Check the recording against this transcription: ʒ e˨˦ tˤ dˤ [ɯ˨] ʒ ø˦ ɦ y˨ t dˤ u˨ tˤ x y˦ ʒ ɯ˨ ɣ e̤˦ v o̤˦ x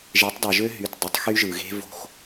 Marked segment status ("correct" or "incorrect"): correct